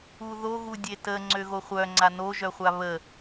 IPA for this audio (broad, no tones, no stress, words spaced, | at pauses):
uðo ɣudʲetə ŋ͡ǀøɣoχʷœ ŋ͡ǀanoʒœχʷa βə